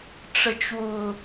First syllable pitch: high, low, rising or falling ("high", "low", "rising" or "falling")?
low